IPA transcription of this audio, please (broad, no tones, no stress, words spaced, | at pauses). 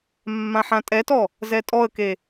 mːãħãtʼɛtɔ | zɛtʼɔə̯ke